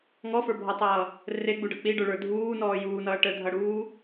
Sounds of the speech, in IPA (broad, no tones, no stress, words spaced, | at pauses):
ŋɔfə˞bʱɔtˤʌː | reɡ͡buɖʌ k͡piɖə˞ɭə˞ dʱuːnɔː juːnʌː ʈə dʱʌɽuː